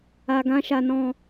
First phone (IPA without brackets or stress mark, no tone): a